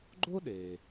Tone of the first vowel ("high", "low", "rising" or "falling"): high